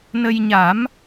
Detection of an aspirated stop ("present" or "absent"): absent